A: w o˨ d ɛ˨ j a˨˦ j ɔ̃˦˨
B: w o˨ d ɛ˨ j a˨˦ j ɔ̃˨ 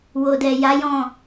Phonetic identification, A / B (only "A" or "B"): A